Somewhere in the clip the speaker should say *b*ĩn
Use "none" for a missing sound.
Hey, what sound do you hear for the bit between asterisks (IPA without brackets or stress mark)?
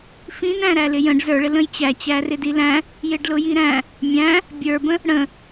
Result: f